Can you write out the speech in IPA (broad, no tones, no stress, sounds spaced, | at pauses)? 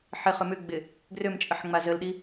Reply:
ħ ɪ χ ʏ m ʏ ɡ͡b ɪ | ɡ r ø m t͡ʃʼ ə ħ ŋ͡m a z ə l ɗ i